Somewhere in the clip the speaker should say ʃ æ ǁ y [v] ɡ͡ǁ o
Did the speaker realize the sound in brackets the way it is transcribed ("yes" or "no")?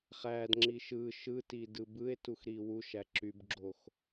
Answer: no